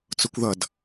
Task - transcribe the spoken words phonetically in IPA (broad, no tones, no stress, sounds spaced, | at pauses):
t͡s ʊ kʷ ð ʌ d